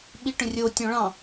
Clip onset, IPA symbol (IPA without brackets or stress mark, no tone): ɓ